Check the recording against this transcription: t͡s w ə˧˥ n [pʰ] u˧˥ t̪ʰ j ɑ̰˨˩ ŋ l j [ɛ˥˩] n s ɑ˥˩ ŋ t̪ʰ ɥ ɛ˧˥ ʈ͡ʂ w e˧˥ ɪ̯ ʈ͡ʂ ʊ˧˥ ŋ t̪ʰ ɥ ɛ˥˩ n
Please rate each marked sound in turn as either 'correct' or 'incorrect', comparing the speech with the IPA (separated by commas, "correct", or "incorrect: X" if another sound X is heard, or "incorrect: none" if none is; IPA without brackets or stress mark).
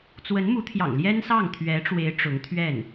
incorrect: m, incorrect: ɛ˥